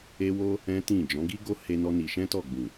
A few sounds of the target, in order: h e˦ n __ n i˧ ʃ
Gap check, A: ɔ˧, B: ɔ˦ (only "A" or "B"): B